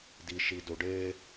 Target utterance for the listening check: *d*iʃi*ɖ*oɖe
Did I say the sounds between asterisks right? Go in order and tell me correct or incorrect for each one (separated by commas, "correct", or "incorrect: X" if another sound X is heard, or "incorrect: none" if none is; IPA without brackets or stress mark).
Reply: correct, incorrect: d